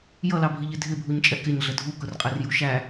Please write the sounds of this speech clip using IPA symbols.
j ʌ l ɑ bʱ i ʎ ɪ dʱ ɪ bʱ u ɲ t͡ʃʼ ɛ k ɪ ɲ ɮ ə dʱ u k ʊ r qʼ ɛ r j u ʃ æ

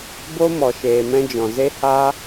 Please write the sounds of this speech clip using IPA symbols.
b o˦ m ɔ˨ ʃ eː˨ m ɛ̃˧ d͡ʒ ɔ̃˨ z e˦ h a˦

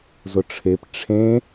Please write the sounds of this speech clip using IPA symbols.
z ʊ ʈ͡ʂʰ e p ʈ͡ʂʰ ẽ

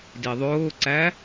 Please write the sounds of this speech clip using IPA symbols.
d i ðˤ ʊː ǀ æ

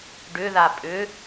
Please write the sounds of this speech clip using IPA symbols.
ɖ ʏ ð a pʼ ʏ

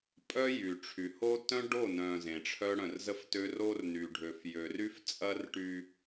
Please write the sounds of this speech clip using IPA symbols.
pʼ œ˦ j y˨ ʈ͡ʂʰ y˨ h o˦ t œ̃˦ ɖ o˦˨ n œ̃˨ z ẽ˨ ʈ͡ʂʰ œ˦ ɽ œ̃˨ r z ə˦ f t ø˦ r o˦ r n y˨ ɖʱ ø˨ f j ø˨ r y˦ f t͡sʼ ɐ˦ r ʈ y˦

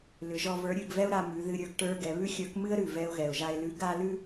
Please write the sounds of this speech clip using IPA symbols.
l ʏ˩˧ ʒ ɔ˧ v ə˞˧˥ ɾʲ ʉ˧ ɡ v ɛ˥ ʊ̯ ɾ a˧ m ʉ˩˧ ð ɨ˧ ɾʲ ə˞˧ ɡ ʈ ə˞˧ ɡ ɛ˩˧ β ʉ˥ xʲ ə˞˧˥ k m ɨ˥ ə̯ ɾ ʉ˩ v ɛ˧ ʊ̯ ɣ ɛ˩ ʊ̯ ʒ a˧ ɪ̯ l ʉ˧˥ ɡ a˥ l ʉ˥

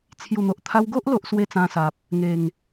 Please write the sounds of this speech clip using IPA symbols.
t͡sʰ j u˨˩ n̪ o˨ ʔ t̪ʰ a˧ w ɡ o˦ ʔ l o˦ ʔ s w e˦ t͡s ã˧ s a˨ p̚ | ŋ e˨˩ ŋ

